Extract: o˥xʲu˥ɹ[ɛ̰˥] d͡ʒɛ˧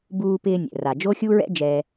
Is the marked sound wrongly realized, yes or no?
no